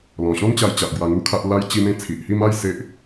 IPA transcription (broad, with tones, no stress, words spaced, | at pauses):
lɔ̃˨˩ɕɔ̃˦nt͡ɕa˧jt͡ɕa˨ʔ ɡwa˧ŋu˦kʰa˦ʔ la˦j t͡ɕi˧mẽ˧ t͡sʰi˨ʔhi˥˧ma˥˧j se˦ʔ